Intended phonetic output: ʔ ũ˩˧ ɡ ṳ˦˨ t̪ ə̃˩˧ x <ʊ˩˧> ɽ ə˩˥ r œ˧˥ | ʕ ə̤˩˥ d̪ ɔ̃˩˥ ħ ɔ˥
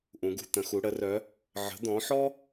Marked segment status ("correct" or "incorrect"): incorrect